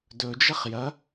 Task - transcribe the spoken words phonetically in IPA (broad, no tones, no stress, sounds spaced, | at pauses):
d ɵ d͡ʒ ɐ χ j ɐ